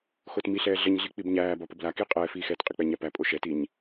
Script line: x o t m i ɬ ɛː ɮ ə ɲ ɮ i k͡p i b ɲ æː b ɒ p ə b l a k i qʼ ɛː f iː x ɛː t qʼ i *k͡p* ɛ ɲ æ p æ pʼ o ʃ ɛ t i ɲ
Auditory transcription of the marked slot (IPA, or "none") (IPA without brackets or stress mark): k͡p